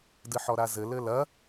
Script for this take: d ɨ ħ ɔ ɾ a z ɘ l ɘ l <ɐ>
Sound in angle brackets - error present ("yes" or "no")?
no